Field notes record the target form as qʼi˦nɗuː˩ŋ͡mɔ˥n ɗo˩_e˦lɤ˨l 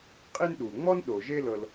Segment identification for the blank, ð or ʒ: ʒ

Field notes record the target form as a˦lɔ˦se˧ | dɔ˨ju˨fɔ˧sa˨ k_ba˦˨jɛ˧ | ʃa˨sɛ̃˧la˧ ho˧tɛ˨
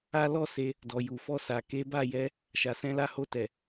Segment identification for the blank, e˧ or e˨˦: e˨˦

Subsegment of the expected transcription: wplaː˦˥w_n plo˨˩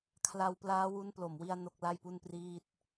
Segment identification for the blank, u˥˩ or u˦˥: u˦˥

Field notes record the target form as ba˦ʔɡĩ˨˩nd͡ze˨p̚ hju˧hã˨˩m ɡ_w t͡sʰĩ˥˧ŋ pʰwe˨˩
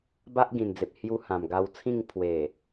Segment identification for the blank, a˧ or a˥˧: a˧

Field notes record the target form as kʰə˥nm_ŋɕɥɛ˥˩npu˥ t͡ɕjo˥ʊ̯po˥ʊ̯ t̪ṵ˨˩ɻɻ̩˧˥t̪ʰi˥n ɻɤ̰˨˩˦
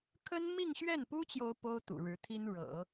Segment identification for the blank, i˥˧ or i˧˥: i˥˧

